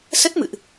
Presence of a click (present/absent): absent